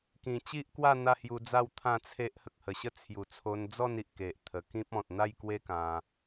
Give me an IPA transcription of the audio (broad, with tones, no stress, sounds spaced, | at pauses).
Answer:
k ĩ˨˩ t͡ɕ i˦ ʔ k w a˥˧ n̪ a˥˧ h j u˧ d͡z a˥˧ w t̪ʰ ã˥˧ t͡sʰ e˦ ʔ h ə˨ k̚ h ə˨˩ ɕ ə˥˧ t͡sʰ j u˨˩ t͡sʰ o˧ n d͡z ɔ˥˧ n i˨ ʔ k e˨ ʔ t̪ʰ ə˨˩ k ĩ˦ p̚ ɔ̃˨ t̚ n̪ a˥˧ j k w e˦ k ã˧